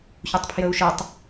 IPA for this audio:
çutˤpʰjəu̯ʃɨtˤ

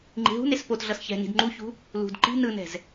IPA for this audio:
ŋ͡ǃi̤ɦṳnes pot ɮʌsçɛ̤ni̤d ŋ͡ǃuçṳ | lṳd ǃi̤ nɯnɛ̤z

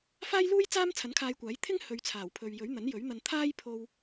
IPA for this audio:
faː˥jluː˥jt͡saː˥m t͡sʰɐ˨˥nkʰaː˧jkʷaː˨˥j t̪ʰɪ˥ŋ hɵ˨˧ɥt͡sʰaː˨˩wpʰɵ˨ɥ jɵ˨˥ɥn̪ɐ˨˥njɵ˨˥ɥn̪ɐ˧n t̪ʰaː˥j pʰo˧w

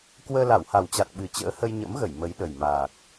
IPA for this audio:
kwəː˧la˧˩wha˨˩wt͡ɕa˨˩t̚ ɓɨ˨˩t͡ɕə̰ː˧˥ hə˧jɲə̰˧˥mɣə˧˩j mə˨˦jɗə˨˩jmaː˨˩k̚

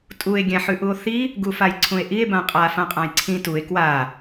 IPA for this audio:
tʼue̯ ɡʲãħʉʔuo̯θi | ɡufajǀʰũe̯ʔie̯ bãqʼa fãqʼãjǀʰĩ tue̯ kwa

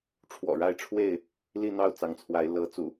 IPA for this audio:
ʈ͡ʂʰwɔ̰˨˩ɻa˥˨ɪ̯ʈ͡ʂʰwe˥˨ɪ̯ | li˥˨n̪ɑ˥˨ʊ̯t͡sɑ˨˦ŋt͡sʰwa˨˦ɪ̯ lɤ˨˦t͡sṵ˨˩

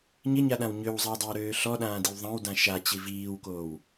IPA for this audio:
ɲɪɲaɗãw ɲøwzˤɛwdˤøwɾøː ɬɔɗãːdiw ðˤãwdã ʃat͡ɕi viːwkoːw

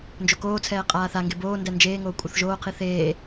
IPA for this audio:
nd͡ʒokoːt͡sʰɛː qʼaːθaŋɡe boːndɛ nd͡ʒeːŋoː kʷʼɤθʒoːqʰi θeː

